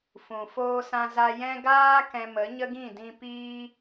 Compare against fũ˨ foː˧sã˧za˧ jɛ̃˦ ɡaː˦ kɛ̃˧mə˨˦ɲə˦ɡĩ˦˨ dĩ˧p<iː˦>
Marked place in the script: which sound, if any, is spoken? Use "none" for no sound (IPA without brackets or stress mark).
iː˦